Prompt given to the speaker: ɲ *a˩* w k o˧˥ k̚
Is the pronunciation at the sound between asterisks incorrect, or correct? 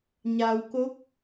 correct